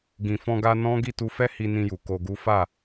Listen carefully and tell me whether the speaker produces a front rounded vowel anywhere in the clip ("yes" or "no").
no